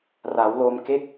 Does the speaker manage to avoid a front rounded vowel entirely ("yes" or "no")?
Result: yes